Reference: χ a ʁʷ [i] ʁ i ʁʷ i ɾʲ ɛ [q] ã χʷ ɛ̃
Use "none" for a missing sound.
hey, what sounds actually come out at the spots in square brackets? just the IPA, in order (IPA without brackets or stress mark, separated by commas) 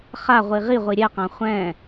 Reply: i, q